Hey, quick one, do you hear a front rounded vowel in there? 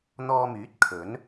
yes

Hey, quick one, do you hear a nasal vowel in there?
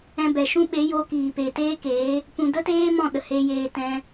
yes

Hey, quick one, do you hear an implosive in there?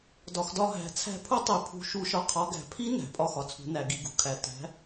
no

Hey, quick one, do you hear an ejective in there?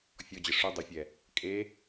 yes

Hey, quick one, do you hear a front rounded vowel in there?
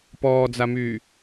yes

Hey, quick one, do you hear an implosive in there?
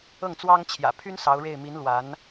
no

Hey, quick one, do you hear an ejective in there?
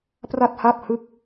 no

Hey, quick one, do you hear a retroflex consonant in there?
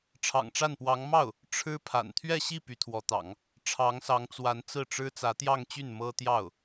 yes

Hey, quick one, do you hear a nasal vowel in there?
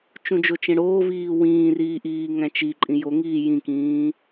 yes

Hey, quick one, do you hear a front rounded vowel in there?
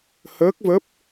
no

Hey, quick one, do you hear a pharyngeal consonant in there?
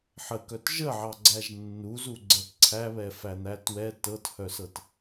yes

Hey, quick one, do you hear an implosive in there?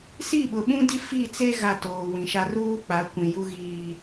yes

